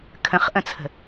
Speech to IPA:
kʰə̃χʔə̃t͡sʰə̤

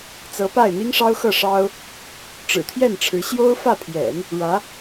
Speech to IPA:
t͡sɤ˧˥pa˥˩ɪ̯ n̪i˥ŋʂɑ˥ʊ̯xɤ˥˩ ʂɑ˥ʊ̯ | ʈ͡ʂɻ̩˨˩t̪ʰjɛ˥˩n ʈ͡ʂʰɻ̩˧˥ ɕjo˥ʊ̯fä˥˩pʰjɛ̰˨˩˦n | ɻä˧˥

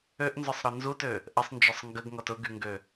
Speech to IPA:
øʔnzʊsˤɾɔ nzutø | ʔəsˤnd͡ʒɔsˤ ŋɡəɡŋɔt ʊɡyŋɡø

